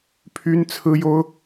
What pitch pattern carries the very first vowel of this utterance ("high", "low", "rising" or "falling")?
high